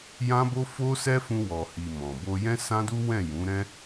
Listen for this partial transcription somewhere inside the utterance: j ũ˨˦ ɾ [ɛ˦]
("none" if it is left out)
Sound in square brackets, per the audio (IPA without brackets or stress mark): ɛ̃˦